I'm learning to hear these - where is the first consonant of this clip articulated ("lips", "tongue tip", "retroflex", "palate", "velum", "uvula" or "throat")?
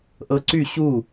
throat